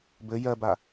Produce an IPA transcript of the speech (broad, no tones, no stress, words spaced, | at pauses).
bɘ jɜba